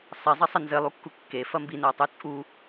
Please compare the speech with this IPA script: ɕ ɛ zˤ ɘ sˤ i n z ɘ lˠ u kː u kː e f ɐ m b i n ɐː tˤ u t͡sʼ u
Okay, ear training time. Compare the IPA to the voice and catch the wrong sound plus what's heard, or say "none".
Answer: ɕ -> sˤ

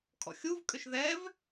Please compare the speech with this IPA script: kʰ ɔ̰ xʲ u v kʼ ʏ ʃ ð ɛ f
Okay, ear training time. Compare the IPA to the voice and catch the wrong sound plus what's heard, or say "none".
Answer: f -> v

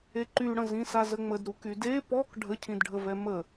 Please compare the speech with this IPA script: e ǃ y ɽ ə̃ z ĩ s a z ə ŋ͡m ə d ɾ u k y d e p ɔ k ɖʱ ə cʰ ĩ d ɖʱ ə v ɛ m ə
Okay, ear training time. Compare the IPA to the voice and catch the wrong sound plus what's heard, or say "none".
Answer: none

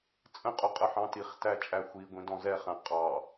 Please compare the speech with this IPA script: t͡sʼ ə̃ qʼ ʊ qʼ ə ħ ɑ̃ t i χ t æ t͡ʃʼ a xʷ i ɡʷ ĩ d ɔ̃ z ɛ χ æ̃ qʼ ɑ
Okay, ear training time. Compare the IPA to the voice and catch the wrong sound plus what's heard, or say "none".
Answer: a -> æ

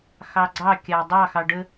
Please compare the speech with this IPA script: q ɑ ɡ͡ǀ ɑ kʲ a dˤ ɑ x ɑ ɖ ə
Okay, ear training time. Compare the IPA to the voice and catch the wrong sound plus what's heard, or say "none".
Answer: q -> x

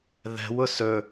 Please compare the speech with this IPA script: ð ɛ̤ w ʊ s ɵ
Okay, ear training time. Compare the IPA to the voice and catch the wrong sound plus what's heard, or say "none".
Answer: none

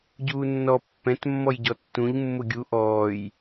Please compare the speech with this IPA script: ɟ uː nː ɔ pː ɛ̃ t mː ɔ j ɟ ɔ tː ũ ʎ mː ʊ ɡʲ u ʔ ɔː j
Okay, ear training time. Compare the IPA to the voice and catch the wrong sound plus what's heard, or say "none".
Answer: none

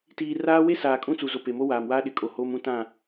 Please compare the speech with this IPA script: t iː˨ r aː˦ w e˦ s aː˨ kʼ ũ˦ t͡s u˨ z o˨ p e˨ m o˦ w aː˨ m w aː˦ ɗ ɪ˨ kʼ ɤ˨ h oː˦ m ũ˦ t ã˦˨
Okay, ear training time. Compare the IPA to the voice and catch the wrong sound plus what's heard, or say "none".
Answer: ɤ˨ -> o˨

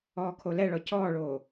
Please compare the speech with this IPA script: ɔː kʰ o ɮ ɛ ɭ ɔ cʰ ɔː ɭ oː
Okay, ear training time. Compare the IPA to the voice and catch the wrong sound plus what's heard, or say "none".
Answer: ɮ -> l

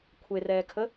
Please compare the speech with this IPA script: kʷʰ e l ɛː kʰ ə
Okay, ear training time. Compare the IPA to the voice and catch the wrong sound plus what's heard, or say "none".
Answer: l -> r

